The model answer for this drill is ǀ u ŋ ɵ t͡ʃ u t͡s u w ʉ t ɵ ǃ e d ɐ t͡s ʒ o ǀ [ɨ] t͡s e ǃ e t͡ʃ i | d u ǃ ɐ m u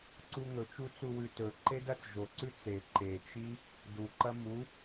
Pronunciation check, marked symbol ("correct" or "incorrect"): incorrect